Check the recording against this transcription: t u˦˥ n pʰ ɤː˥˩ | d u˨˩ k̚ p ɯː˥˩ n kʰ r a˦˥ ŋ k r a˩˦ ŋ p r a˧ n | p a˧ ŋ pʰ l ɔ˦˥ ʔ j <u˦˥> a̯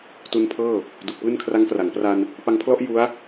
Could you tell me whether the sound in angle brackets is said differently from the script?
no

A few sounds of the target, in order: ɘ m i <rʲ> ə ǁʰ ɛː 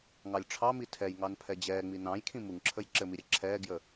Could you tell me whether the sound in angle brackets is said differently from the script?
yes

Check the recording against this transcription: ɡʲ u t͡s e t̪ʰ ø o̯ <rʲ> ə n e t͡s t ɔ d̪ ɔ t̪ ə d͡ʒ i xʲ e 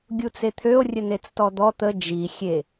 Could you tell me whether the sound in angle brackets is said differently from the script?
no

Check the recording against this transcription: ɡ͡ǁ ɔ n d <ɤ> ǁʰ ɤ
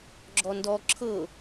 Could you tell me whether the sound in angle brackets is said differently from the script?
yes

